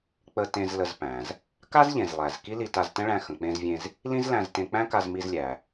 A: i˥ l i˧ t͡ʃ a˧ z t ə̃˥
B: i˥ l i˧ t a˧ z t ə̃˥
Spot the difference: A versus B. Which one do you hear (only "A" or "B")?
B